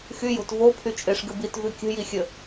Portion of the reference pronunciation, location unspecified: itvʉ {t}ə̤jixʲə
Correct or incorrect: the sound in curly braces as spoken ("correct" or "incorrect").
incorrect